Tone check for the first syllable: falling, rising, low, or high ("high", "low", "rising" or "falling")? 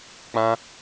high